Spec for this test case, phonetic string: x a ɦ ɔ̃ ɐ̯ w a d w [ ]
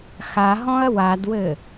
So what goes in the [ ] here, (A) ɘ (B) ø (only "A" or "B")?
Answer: A